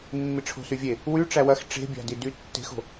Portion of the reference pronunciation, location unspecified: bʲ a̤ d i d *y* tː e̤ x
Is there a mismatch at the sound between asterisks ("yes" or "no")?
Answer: no